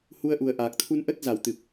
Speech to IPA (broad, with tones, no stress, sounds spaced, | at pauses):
h u˧ ə̯ ʔ u˨˩ ə̯ ʔ aː˨˩ k̚ t̪ʰ u˧ n ʔ ə˦˥ t̚ z a˧˩ w t̪ ɨ˨˩ p̚